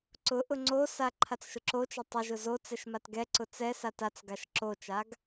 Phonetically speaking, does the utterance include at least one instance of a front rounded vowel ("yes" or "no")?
no